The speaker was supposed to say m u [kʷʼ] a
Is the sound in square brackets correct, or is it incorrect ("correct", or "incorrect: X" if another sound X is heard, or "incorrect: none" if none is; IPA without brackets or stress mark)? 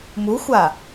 incorrect: xʷ